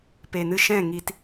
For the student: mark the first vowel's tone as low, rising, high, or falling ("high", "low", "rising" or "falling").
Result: low